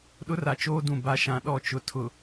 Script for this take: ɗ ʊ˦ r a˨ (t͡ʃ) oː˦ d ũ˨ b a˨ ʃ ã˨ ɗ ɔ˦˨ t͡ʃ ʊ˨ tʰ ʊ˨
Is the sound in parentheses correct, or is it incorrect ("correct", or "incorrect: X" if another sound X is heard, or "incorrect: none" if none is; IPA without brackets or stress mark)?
correct